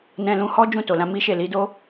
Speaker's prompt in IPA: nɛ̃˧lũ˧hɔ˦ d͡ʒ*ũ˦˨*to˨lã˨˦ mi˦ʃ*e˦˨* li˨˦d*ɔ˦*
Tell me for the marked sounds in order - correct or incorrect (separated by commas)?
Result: correct, correct, incorrect